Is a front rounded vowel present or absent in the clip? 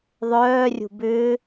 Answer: present